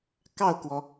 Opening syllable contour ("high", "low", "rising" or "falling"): falling